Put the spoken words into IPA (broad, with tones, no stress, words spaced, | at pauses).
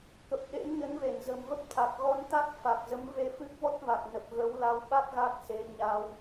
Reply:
kə˨˩p̚ɗḛ˧˥mɲə˨˦n ve˧˩nzə̤˨˩mvə˦˥p̚ t̪ʰa˨˩k̚ɣɔ˧n t̪a˦˥k̚ fa˨˩k̚zə˨˦mve˧fɨ˦˥k̚ vɔ˦˥t̚va˨˩k̚nə˨˩p̚ ɣə˨˦wla˧w ɓa˦˥k̚ ɣa˦˥k̚se˨˦ ɲa˧w